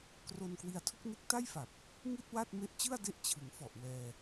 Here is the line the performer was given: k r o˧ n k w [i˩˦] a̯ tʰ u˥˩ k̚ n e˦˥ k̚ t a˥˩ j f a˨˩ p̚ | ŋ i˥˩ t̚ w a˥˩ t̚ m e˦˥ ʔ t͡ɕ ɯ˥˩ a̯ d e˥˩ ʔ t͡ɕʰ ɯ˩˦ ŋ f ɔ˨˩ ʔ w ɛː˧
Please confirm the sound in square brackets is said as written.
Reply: no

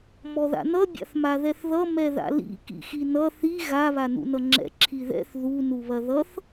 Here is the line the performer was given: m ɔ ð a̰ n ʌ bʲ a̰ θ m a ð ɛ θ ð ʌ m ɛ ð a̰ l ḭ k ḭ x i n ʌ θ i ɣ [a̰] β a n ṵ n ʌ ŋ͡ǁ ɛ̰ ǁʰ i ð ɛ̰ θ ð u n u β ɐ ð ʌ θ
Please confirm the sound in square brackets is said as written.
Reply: no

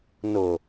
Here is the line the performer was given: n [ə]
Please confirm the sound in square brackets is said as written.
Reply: no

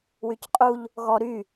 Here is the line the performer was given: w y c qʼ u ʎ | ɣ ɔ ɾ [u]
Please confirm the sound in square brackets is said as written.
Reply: no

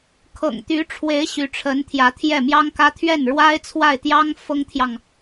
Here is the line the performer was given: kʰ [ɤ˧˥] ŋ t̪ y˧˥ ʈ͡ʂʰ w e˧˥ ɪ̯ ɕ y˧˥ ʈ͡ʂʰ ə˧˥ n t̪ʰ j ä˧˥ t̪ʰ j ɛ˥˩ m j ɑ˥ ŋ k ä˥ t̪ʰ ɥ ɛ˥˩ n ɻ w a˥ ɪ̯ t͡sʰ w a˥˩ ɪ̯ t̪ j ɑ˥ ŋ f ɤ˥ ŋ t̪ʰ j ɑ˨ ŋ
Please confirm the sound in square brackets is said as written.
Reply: no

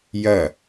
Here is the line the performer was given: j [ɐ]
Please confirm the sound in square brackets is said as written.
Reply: yes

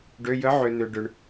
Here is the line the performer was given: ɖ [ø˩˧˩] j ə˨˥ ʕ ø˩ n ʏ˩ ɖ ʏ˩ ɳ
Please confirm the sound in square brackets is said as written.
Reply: yes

